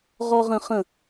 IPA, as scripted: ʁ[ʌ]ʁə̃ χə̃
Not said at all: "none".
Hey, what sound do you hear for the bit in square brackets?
ɔ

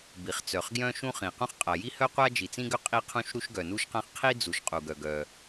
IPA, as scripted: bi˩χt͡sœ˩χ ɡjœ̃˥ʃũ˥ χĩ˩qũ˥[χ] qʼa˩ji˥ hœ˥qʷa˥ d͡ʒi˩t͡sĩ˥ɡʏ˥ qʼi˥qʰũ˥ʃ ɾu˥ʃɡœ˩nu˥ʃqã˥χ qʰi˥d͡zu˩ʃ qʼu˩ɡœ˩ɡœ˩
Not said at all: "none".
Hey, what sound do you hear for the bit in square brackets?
χ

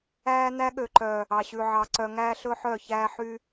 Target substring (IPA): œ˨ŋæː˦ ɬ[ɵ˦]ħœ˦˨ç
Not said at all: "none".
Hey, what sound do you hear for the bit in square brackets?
ɵ˦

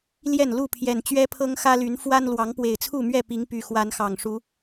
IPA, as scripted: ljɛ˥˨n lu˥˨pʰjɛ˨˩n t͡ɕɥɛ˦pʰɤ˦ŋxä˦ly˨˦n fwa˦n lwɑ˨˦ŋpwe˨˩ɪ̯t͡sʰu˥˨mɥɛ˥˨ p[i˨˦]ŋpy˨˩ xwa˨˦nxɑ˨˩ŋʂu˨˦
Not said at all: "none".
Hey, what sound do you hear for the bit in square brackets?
i˨˦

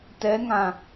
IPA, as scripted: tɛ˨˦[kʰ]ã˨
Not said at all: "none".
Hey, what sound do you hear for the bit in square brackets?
ŋ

